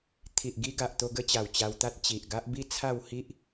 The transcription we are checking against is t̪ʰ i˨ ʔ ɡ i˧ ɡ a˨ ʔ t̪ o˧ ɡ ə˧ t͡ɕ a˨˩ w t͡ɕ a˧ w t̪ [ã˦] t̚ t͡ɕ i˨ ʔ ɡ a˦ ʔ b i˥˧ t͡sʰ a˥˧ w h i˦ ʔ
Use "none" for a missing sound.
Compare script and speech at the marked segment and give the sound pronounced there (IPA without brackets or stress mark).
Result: a˦